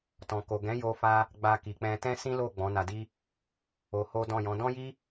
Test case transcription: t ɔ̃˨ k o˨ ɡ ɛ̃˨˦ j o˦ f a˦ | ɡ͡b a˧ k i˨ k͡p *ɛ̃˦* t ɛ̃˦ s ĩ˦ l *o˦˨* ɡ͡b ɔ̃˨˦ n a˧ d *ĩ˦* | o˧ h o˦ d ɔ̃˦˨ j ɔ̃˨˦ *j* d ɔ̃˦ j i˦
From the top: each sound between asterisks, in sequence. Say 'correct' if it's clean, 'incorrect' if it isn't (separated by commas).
incorrect, correct, incorrect, incorrect